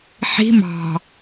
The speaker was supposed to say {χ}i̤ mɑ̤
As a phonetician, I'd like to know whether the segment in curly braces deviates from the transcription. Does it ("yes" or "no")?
yes